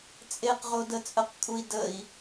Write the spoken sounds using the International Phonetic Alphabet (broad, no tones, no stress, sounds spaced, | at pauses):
t͡sʼ e q ʁ o d ə t͡sʼ ə q kʼ u i̯ d ə i̯